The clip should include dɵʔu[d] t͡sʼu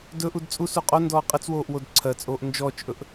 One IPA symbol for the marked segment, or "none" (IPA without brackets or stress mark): d